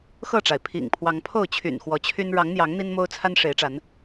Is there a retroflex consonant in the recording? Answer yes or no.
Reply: yes